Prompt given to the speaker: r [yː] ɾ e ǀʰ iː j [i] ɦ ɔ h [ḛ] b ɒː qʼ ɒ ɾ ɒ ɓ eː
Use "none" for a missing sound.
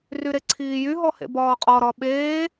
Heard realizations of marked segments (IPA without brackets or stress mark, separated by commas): y, y, ḛ